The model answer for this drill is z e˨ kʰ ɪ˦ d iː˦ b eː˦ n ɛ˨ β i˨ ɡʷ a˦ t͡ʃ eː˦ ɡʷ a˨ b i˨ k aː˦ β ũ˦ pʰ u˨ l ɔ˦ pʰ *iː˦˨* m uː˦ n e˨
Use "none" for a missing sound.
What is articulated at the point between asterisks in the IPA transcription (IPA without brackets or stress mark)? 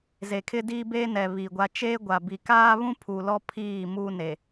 iː˦˨